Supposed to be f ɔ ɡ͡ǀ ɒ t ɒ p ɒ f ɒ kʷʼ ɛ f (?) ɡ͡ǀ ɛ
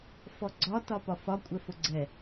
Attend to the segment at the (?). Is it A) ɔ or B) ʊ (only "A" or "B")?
B